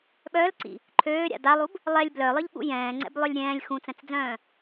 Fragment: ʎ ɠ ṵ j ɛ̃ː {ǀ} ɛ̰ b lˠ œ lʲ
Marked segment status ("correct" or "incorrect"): incorrect